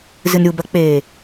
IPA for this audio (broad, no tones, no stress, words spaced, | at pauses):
zɨnɾʲubɐk͡peː